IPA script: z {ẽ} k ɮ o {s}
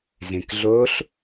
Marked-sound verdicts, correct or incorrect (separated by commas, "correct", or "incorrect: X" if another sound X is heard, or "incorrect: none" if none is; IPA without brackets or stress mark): correct, incorrect: ɬ